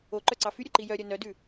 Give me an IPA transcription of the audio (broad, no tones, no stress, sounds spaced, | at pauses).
o ǃ œ ǀ ɑ f y ɾʲ o ǃ i j œ ɾʲ œ n œ d ʉ